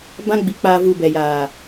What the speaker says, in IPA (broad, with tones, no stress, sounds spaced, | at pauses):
b ã˦ ɡ͡b i˧ k͡p aː˧ v u˧ b ɛ˨ j aː˨